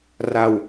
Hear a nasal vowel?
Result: no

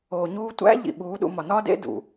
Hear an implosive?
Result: yes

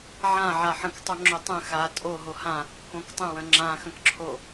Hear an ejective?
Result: yes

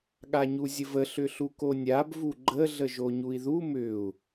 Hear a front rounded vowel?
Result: yes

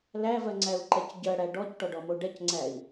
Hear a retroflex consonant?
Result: yes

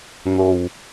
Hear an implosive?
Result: no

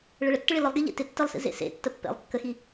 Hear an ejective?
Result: no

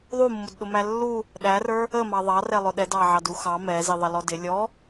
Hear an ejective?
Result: no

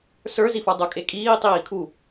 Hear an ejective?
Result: yes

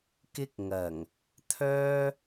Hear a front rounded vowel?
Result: yes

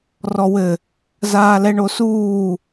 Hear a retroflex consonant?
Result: yes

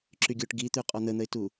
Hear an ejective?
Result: yes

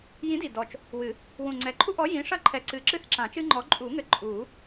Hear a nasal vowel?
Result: yes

